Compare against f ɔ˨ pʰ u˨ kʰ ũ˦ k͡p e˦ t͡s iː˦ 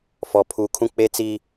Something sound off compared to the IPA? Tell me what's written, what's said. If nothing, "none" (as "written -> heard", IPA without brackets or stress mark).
none